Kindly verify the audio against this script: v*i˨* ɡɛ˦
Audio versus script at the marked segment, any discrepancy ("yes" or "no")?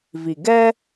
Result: no